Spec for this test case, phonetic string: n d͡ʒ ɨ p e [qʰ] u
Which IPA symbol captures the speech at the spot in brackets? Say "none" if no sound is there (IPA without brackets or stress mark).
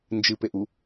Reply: ʔ